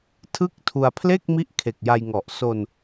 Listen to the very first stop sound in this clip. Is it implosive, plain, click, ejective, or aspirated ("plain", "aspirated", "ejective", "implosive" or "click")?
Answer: aspirated